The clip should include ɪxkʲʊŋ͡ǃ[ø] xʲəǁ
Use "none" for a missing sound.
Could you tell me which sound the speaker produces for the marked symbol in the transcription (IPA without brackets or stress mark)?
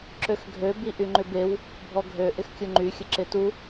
y